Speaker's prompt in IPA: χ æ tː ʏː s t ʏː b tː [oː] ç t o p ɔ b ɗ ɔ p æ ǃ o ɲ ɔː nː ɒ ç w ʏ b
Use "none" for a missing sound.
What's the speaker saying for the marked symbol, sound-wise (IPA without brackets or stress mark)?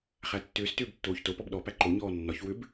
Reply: oː